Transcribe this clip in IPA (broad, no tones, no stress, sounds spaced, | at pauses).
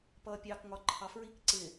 p ʌː pʲ ɑː k ŋ ɒ ǃʰ ɑ f ɹ i k ǀ ɪ